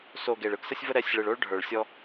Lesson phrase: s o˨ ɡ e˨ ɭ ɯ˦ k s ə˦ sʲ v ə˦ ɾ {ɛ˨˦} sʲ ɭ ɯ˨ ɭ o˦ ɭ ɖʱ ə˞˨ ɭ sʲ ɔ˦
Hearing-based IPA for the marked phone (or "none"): ɛ˨˦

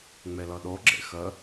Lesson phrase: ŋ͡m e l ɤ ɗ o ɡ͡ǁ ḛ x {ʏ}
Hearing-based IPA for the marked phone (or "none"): ə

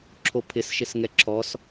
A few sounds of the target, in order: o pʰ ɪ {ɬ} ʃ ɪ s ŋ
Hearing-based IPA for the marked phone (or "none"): s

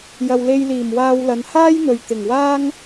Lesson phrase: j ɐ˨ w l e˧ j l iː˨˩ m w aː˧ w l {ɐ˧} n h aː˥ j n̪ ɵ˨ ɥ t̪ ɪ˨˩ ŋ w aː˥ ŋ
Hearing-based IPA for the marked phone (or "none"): ɐ˨˧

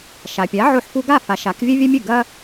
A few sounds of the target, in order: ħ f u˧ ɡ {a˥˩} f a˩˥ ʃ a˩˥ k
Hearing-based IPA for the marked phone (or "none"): a˥˩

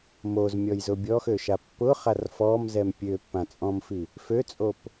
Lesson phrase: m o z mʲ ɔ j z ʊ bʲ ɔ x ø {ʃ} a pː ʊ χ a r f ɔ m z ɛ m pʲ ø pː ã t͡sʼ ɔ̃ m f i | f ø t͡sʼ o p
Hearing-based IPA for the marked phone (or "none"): ʃ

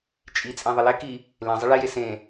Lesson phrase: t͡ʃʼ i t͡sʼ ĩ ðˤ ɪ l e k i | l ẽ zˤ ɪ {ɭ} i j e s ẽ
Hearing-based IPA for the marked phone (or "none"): ɭ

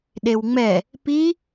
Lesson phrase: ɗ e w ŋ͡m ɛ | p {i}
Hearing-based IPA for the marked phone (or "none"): i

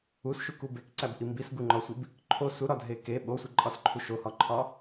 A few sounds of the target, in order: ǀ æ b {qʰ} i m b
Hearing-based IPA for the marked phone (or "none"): ʔ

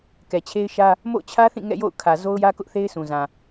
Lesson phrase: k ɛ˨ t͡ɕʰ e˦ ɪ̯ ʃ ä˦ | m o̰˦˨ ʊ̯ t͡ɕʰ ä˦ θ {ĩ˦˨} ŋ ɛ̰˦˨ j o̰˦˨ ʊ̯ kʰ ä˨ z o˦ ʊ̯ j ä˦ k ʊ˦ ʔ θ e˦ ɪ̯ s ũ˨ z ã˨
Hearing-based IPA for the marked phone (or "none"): ĩ˦˨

